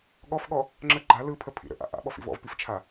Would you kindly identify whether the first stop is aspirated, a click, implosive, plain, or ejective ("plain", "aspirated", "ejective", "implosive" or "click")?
implosive